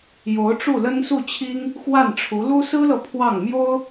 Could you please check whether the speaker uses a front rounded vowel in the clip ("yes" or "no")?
no